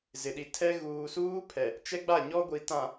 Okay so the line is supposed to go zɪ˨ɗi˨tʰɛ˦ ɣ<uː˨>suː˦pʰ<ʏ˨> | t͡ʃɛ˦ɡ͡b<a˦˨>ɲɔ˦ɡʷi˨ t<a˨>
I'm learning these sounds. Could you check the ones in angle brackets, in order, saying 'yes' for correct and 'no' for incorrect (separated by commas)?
yes, no, yes, no